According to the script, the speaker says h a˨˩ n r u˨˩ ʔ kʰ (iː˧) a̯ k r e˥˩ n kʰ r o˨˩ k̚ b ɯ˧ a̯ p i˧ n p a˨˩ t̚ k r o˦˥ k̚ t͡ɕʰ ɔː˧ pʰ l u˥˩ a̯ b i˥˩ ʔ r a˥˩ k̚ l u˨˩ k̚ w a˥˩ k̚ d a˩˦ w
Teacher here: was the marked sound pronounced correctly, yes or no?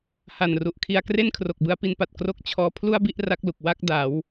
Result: no